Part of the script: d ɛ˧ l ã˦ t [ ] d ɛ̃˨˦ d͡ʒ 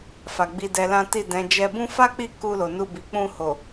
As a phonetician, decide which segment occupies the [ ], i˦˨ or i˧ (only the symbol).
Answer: i˦˨